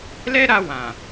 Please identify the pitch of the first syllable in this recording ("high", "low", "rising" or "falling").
high